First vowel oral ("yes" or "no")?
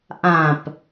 no